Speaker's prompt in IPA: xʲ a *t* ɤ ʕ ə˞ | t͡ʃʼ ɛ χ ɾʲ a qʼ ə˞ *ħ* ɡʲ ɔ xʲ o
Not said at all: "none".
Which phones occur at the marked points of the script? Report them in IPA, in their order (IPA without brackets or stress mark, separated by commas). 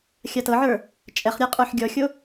t, ħ